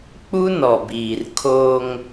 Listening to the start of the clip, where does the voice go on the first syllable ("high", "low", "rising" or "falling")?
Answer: high